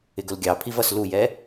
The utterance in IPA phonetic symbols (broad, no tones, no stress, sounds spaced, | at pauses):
ɪ ɡ ʊ l ɡʲ ɑ pʰ i v ʌ s l u j ɛ